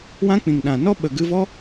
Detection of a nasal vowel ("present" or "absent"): present